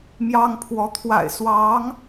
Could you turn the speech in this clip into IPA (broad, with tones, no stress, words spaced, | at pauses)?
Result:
mjɑ˥ŋpʰwɔ˧˥ t̪ʰwa̰˨˩ɪ̯swɑ˧˥ŋ